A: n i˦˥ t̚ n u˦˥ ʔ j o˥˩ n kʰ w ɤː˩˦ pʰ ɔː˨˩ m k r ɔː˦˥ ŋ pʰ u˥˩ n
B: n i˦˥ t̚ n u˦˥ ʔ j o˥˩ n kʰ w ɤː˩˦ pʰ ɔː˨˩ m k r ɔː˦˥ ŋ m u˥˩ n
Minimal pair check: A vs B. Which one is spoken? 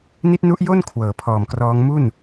B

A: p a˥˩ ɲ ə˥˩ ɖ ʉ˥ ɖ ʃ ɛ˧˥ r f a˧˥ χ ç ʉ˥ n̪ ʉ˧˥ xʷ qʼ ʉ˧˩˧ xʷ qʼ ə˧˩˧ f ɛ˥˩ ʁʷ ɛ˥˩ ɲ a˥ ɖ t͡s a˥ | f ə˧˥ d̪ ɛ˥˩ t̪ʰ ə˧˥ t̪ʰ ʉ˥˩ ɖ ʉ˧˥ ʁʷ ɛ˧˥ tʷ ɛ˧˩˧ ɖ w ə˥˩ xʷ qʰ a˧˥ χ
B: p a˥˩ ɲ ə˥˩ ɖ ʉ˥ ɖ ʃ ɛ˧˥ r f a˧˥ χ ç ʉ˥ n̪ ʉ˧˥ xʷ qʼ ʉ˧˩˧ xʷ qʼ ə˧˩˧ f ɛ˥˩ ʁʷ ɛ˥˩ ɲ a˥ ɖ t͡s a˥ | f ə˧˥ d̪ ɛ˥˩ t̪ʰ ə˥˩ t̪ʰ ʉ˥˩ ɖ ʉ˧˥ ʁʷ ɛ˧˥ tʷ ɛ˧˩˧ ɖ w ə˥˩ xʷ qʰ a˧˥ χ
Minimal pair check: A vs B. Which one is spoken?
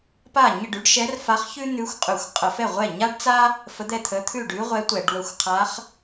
A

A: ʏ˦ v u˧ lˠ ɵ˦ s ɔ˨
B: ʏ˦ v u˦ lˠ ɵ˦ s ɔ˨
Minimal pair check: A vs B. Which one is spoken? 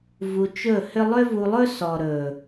A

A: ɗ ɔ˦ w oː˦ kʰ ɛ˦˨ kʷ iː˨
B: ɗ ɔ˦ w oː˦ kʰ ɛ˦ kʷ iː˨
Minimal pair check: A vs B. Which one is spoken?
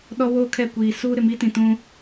A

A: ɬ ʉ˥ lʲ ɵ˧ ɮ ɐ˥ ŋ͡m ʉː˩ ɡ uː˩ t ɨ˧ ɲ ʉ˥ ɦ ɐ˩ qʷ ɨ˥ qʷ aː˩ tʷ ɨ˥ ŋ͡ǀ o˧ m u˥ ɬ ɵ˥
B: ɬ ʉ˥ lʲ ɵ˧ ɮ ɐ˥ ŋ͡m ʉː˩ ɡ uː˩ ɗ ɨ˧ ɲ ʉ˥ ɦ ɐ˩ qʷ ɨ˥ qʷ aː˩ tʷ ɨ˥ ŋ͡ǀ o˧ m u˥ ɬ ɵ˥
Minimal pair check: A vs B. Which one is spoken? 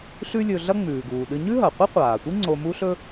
B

